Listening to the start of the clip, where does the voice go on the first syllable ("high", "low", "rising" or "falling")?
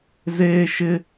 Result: high